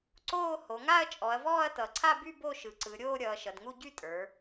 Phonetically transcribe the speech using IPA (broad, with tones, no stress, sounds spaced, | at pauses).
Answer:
ǀ oː˥˧ h o˩˧ ŋ a˥˧ ɐ̯ t͡ʃʼ ɔ˩˧ ɐ̯ v ɔː˥˧ ɐ̯ t ʌ˩˧ ǀʰ a˥˧ b y˥˧ b o˥˧ ʃ ɯ˩˧ ǀ ɯ˩˧ ɾʲ oː˥˧ ɾʲ ʌː˩˧ ʃ ʌ˩˧ d ŋ u˥˧ ɟ y˥˧ tʼ ə˞˩˧